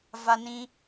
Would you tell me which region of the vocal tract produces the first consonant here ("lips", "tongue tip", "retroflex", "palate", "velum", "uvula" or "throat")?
lips